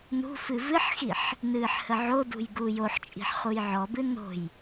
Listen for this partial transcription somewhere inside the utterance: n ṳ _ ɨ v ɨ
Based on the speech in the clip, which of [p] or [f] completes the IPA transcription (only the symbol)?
f